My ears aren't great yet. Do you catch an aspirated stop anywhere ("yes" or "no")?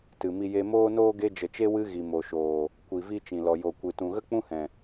no